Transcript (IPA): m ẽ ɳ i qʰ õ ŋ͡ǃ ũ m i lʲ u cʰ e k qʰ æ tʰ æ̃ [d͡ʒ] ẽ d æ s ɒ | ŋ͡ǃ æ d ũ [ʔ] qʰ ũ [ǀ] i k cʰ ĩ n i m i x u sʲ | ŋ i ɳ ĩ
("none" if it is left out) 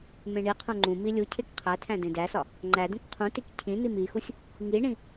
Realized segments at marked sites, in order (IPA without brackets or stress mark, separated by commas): d, k, t